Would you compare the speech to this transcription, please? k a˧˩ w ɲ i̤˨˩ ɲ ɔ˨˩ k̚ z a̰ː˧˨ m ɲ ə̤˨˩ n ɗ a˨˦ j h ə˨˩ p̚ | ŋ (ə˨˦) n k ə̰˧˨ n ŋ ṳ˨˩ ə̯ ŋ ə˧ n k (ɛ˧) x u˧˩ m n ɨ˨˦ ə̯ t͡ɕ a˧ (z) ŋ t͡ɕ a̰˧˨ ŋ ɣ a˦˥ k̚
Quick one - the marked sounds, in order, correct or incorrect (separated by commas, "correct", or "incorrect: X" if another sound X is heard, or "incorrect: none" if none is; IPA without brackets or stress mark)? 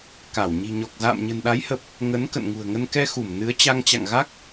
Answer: correct, correct, incorrect: none